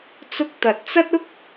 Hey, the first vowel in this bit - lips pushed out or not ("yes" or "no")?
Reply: yes